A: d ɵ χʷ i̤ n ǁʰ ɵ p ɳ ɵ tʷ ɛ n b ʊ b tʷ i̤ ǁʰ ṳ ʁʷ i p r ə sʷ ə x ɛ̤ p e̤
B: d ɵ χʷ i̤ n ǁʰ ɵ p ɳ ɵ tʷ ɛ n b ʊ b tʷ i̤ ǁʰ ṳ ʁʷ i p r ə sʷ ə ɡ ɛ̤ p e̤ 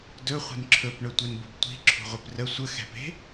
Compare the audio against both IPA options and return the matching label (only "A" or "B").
A